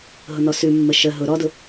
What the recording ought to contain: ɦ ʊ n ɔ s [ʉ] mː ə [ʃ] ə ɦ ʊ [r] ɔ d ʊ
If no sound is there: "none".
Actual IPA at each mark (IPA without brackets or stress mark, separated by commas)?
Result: ʉ, ʃ, ɾ